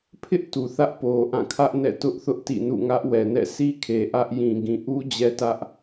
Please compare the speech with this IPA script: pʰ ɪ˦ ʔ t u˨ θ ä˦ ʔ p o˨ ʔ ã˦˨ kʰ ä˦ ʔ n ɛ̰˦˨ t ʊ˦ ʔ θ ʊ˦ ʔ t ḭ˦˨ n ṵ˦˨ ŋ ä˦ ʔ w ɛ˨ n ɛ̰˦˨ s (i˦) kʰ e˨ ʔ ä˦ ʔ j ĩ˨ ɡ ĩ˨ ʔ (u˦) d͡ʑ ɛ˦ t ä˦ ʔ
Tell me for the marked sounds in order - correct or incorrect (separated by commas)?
correct, correct